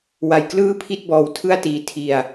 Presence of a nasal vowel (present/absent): absent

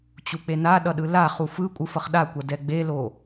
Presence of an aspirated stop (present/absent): absent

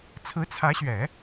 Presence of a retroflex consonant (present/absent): absent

